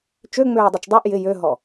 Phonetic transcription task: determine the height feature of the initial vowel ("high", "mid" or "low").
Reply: mid